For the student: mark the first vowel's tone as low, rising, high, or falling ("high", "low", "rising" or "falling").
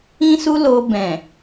high